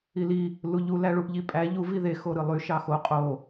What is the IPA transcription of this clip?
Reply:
i l i | l u ʎ u l æ ɭ u ʔ ʎ i pʼ æ ʎ u v i ð e x o ɾ ɯ lˠ y ʃ ɑ x o qʼ o

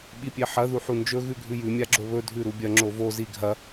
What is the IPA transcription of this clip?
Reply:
ɓ i pʲ e ħ ɐ ð u ħ u n d͡ʒ ɵ ɣ ʉ ɡʱ ʉ j ʉ mʲ a ɡ͡ǁ o β ɵ dʱ ʉ ɾ u bʲ ɐ ŋ͡ǁ o v o z i ɡʱ ɐ

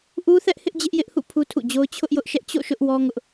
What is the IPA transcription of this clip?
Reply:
ʔ u˦ θ ɛ˦ ʔ h ɪ˦ ʔ d͡ʑ ɪ˦ ʔ j ɪ˦ ʔ h ṵ˦˨ pʰ u˦ tʰ ṵ˦˨ d͡ʑ o˦ ʊ̯ t͡ɕʰ ʊ˦ ʔ j ʊ˦ ʔ ʃ ɛ˦ ʔ t͡ɕ o̰˦˨ ʃ ʊ˦ ʔ w ɔ˦ ŋ ʊ˦ ʔ

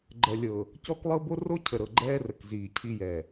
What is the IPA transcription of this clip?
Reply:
ɡ͡ǃ ɜ˨ lʲ ɤ˨ | c ɔ˦ k lˠ ɤ˦ b o˦ r o˦ cʰ ə˨ ɾ ɤ˨ ɡ͡ǃ ɛː˦ r ə˨ k z iː˨ cʰ i˦ j ɛ˨

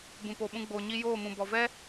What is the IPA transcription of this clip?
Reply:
b ũ˨ p o˨ ɓ ũ˧ ɡ͡b oː˨ ɲ i˧ j oː˦˨ m ũ˨ b ɔ˨ v ɛ˦

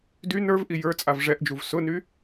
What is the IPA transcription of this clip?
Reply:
d y n ə˞ v ʔ i j ə˞ t͡sʼ a v ʐ ɛ ʔ d͡ʒ u v s ʊ n y

